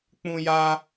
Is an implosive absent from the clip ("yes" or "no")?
yes